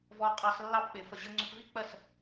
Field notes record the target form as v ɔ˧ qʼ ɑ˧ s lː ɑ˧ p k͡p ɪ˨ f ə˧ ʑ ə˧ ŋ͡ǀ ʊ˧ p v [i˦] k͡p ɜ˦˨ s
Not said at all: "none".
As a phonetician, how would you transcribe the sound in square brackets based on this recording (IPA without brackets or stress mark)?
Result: i˦